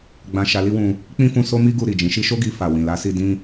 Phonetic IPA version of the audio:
ɡ͡b ã˧ ʃ a˧ l i˦ w ũ˧ | k͡p ĩ˦ f ũ˧ s o˦ m i˦ ɡ u˧ ɾ i˨ d͡ʒ ĩ˨˦ ʃ i˦ ʃ o˦ ɡ i˧ f a˨ w ĩ˨ l a˨˦ s i˧ d ĩ˦

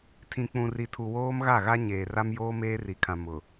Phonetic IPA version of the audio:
tʰ ĩ˨ k͡p ũ˨ r i˨ tʰ u˨ w oː˦ m ɣ a˦˨ ɣ a˦ ɲ eː˨ r a˦ m j oː˦ m eː˦ r i˨ kʰ ã˨ m ʊ˨

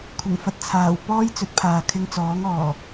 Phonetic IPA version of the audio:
kʷʰ ɪ˨˩ ŋ f ɐ˨ t̚ t͡sʰ aː˨˩ w p ɔː˥ j t͡s ɵ˨˥ t̚ pʰ aː˨ kʰ ɪ˧ ŋ t͡s ɔː˨˥ ŋ ɔː˨˩

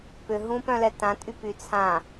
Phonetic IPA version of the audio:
p ʏ ɦ ũ p œ̃ l ɛ t ã tʼ y p y t͡sʰ ã

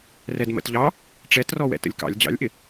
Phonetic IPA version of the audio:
r ɛ d m ə̰ t ʎ ɑ | ʈ͡ʂ ɛ t r ɔ w ɛ̰ t ə̰ lʲ k ɑ̰ lʲ d͡ʑ ɑ̰ lʲ ʔ ɪ

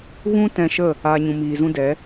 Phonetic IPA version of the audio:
ɣ ũ˧ t ɛ̃˧ ʃ ə˦˨ | a˨ ɲ ũ˨ m iː˨ z ũ˧ d ɛ˨˦

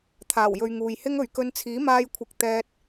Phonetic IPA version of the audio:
t̪ʰ aː˨˩ w j ɵ˨ ɥ ŋ uː˨ j h ɪ˥ ŋ ɵ˨ ɥ k ɵ˧ n t͡sʰ iː˨˥ m aː˧ j kʷʰ ɪ˨˥ k̚ t̪ ɛː˧ t̚

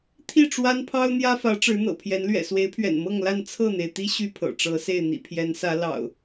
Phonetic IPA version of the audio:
t̪ʰ i˥˨ ʈ͡ʂ w a˦ n pʰ ɑ˦ ʊ̯ n̪ j ä˦ f ä˨˦ ʈ͡ʂ ɻ̩˨˦ n̪ ɤ̰˨˩ pʰ j ɛ˨˦ n l ɥ ɛ̰˨˩ s w e˨˦ ɪ̯ pʰ ɥ ɛ̰˨˩ n m ɤ˥˨ ŋ l a˥˨ n t͡sʰ ɤ˥˨ n̪ e˩ ɪ̯ t̪ i˦ ɕ y˥˨ pʰ ɤ̰˨˩ ʈ͡ʂ ɤ˨˦ s e˥˨ ɪ̯ n̪ ḭ˨˩ pʰ j ɛ˨˦ n s ä˨˦ l ɑ̰˨˩ ʊ̯

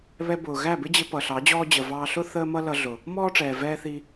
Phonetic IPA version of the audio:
β ɛ˧ b ʊː˨ ɣ æ˦˨ b ɪ˦ d͡ʑ ɪ˧ p ʌ˨ ɬ ɑ˨˦ d͡ʑ ɔː˦ d͡ʑ ə˨ v ɑː˧ ɬ ʊ˦ θ əː˦ m ʌ˦ l ʌ˧ ɮ ʊ˨ | m ɔː˦ ʈ͡ʂ ɛː˨ v ɛː˦ θ i˦

